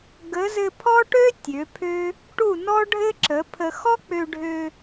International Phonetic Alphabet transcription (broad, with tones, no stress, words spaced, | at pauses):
ɡə˨˦zɘ˧ pʰɔ˦ʈø˦ tʲø˨˦pʰø˦ | ʈu˦˨nɔ˦ɖʱɘ˦ǁə˨˦ pʰə˧ xɔ˦k͡pø˧ɖʱø˧